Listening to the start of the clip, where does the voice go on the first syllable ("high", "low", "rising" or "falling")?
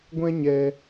high